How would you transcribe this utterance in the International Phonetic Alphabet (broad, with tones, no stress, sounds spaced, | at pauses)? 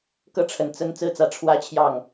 k ɤ˥˩ ʈ͡ʂʰ ə˨˩ n t͡s ə˥ n t͡s ɹ̩˥ t͡s ä˧˥ ʈ͡ʂʰ w ä˥ t͡ɕʰ j ɑ˥˩ ŋ